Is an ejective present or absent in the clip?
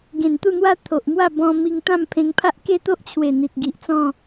absent